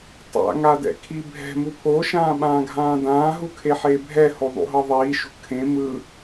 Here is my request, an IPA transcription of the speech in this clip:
tˤ a̰ ŋ a d ɛ̰ kʰ i bʱ ɛ̤ m u pʰ o ʃ ãː ɓ ãː ɡʱ ãː d ãː ɦ u kʰ e ħ e bʱ ɛ h o ðˤ ṵ ɦ ɤ ðˤ iː ʃ ṳ kʰ ẽ m ɯ

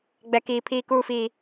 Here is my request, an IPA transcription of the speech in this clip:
ɡ͡b ɛ˦ k iː˦ pʰ iː˦ k uː˦ f iː˦

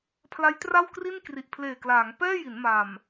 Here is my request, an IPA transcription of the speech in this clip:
pʰ l a˦˥ j t r a˥˩ w k r i˥˩ n k r i˨˩ ʔ pʰ l eː˨˩ k l aː˩˦ ŋ p ɛː˥˩ j i˩˦ n m a˨˩ m

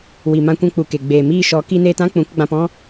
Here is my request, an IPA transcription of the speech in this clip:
w i˨ m ã˧ kʷ ɛ̃˧ k͡p u˨ k e˨ ɡ͡b eː˨ m iː˧ ʃ ɔ˨˦ k i˧ n eː˧ t ã˦ k͡p ũ˨˦ k ɡ͡b ã˧ p ɔ̃˦

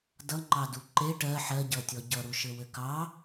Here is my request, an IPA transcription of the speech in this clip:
d ʌ ŋ͡ǃ ɑ d u ǃ e ʈ ɜ ħ ɜ ɟ ʌ tʲ ɔ ɟ ʌ ɾ u ʃ ɘ w ɘ k ɑ

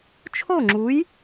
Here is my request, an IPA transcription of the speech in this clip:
t͡ʃʰ o˥˩ ŋ͡ǁ u˩˥ j

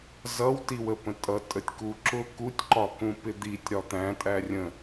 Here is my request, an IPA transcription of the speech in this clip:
z ʌ w t i w ə p ə̃ tʼ ʌ tʼ ə tʲ k u ǁ ʊ k u tʲ ǃ ɒ k ũ p ɪ d̪ i tʲ ɾ ɒ t̪ æ̃ tʼ æ rʲ ə̃

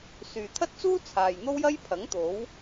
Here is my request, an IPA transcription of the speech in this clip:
s yː˨ t̪ʰ ɐ˥ t̚ t͡s uː˥ t͡sʰ aː˨ j n̪ o˥ w j ɐ˥ j pʰ ɐ˨˥ ŋ t̪ o˨˥ w

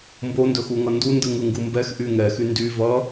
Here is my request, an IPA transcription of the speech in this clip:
m b o n d ɵ x u ŋ ʌ n d u n d ɯ ŋ ɯ ŋ ɡ u m b ɛ x ʔ y ŋ ɛ x y n d y v ʌ

